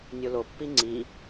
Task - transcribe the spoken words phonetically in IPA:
nʲ o l o pː i ŋ͡ǀ i

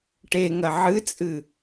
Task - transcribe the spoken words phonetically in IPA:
ʈ e ŋ ɐ ʕ ɨ t͡sʼ ɨ

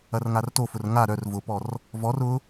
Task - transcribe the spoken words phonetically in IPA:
ɐ r ŋ a r t o f ʊ r ŋ a ɾ œ r v ʊ p ɔ r | v ɔ r ʊ

